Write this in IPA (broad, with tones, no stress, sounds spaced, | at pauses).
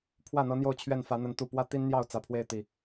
pʰ w ä˥˨ n̪ ɤ˦ n̪ j o˥˨ ʊ̯ t͡ɕʰ ɥ ɛ˥˨ n f ä˨˦ n̪ ə˨˦ n t̪ u˨˩ p w ä˦ t̪ i˦ n n̪ j ɑ˥˨ ʊ̯ t͡s ä˨˩ pʰ w e˥˨ ɪ̯ t̪ i˨˩